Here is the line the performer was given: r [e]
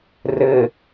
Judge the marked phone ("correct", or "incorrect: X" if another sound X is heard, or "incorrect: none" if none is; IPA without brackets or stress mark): incorrect: ɘ